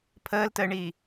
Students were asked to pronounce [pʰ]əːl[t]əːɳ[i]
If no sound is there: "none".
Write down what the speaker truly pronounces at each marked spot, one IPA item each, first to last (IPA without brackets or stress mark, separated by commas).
pʰ, t, iː